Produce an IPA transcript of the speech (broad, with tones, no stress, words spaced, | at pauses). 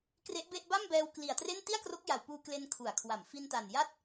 kre˦˥ʔbe˥˩ʔ ba˥˩mbɛː˧wkli˨˩a̯tre˥˩n ti˥˩a̯kro˦˥k̚ja˨˩wpuː˧ kle˧nkʰu˩˦a̯kʰwa˩˦m fi˧nta˨˩nja˥˩t̚